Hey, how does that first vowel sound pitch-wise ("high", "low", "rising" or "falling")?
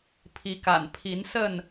rising